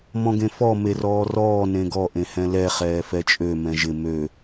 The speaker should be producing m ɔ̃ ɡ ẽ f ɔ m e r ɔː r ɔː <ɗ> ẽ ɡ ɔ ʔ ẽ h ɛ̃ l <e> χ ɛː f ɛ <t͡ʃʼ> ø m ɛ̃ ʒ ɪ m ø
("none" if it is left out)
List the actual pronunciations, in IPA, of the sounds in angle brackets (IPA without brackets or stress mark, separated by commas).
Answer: n, ɛ, t͡ʃʼ